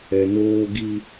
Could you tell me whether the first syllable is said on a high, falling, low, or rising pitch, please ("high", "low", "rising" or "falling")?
low